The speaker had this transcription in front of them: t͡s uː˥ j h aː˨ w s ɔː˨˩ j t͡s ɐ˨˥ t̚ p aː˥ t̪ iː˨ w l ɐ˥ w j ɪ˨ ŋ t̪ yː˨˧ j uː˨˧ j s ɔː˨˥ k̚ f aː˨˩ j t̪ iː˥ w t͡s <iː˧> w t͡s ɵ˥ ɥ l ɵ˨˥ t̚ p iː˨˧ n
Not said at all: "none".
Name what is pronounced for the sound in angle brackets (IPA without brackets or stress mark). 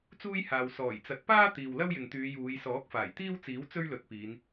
iː˨˥